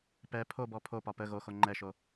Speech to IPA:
p ɛ pʰ o b ɔ pʰ o p ɒ p ə ɣ o x o ŋ͡ǃ ɛ ʃ o

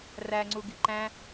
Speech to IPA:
r æ ŋ͡ǀ u ɡ i ǃ æ̃

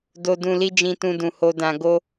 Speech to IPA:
d o˨ d ũ˨ l i˧ d͡ʒ ĩ˧ t ũ˧ d ũ˨ h o˨ d ã˨ ɡ o˧

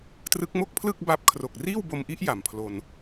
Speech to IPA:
t r ɯ˦˥ k̚ m o˥˩ k̚ pʰ l ɯ˥˩ k̚ b a˦˥ p̚ kʰ r o˨˩ k̚ r iː˥˩ w b o˧ m ʔ i˦˥ ʔ j a˨˩ m pʰ l o˧ n

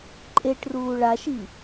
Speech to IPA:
ǃʼ e ʈ r uː ɭ a ʃ i

